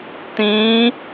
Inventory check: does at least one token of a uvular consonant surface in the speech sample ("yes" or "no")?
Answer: no